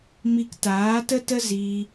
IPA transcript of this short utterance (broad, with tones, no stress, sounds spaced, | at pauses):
m i˧ k t aː˨˦ t ə˦ t ə˦ z i˧